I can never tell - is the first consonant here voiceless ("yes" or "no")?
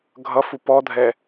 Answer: no